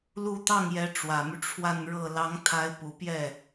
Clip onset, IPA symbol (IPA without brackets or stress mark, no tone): l